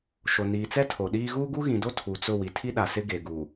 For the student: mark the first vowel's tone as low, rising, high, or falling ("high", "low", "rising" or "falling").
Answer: low